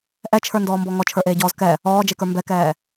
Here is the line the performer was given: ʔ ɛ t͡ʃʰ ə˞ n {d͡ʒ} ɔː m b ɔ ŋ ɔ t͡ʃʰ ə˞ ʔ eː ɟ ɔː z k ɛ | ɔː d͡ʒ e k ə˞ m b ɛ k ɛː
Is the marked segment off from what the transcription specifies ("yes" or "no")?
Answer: yes